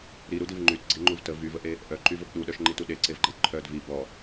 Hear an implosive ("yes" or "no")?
yes